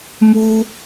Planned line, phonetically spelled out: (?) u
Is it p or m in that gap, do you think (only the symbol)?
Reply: m